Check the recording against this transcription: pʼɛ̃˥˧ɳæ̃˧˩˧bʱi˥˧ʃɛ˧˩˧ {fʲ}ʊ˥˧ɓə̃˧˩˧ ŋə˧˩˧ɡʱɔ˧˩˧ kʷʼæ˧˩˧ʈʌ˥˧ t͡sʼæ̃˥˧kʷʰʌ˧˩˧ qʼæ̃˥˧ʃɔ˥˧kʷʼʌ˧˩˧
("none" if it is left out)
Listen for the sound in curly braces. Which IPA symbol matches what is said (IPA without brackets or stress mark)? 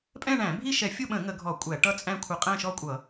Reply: fʲ